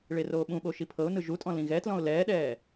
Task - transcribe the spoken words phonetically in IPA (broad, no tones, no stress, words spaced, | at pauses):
ɭeroːɓũɓo ʃipʰɤʊ̯nɯ ʒutʼɔ̃ lĩɣɛtlɔ̃ʊ̯ lɛːɗɛː